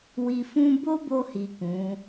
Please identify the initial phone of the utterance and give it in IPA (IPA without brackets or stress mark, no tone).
w